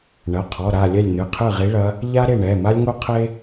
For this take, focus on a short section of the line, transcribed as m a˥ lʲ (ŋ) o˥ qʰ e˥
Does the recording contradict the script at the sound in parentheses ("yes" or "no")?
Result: no